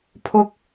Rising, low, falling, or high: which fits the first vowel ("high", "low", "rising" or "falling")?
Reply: high